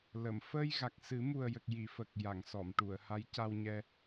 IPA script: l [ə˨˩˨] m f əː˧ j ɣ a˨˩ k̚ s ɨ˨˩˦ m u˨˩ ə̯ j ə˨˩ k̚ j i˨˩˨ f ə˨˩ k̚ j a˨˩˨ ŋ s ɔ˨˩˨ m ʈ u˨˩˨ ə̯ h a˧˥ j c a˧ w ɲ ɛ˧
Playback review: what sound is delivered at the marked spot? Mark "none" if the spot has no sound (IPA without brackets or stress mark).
ə˨˩˨